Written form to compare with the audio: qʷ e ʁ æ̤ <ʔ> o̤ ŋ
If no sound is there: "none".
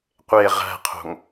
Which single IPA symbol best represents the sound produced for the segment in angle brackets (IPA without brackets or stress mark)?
qʰ